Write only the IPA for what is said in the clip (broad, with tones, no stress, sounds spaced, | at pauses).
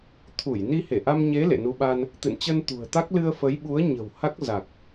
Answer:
t̪ʰ u˧˩ j n i˧ h e˧˩ ʔ a˧ m ɲ e˨˦ l ḛ˧˨ n u˧ ɓ a˧ n | t̪ ɨ̰˧˨ n t͡ɕ ə˧ n t̪ ṳ˨˩ ə̯ t̪ a˦˥ k̚ l ɨ˧ ə̯ f ə˨˦ j ɓ u˨˦ ə̯ ɲ ə̤˨˩ w h a˦˥ k̚ z a˨˩ k̚